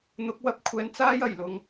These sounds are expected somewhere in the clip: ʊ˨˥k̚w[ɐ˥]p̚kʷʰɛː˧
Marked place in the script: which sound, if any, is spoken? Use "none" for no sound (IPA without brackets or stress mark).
ɐ˥